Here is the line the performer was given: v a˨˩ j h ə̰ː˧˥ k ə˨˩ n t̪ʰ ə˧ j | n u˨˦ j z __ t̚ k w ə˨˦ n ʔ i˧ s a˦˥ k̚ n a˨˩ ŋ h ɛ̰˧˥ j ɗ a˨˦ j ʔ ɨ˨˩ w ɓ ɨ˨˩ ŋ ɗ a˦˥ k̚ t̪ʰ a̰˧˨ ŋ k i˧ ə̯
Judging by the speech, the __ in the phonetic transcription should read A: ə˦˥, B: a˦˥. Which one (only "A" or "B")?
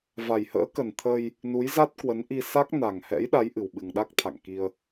B